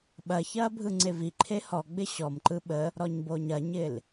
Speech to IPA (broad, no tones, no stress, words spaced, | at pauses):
ɓɐçɐː bʱɯŋ͡ǀeviǃʰe hɔɡ͡bɪ ɕɔmǃɯ ɓə | ɾɔɲboɲɐɲɪl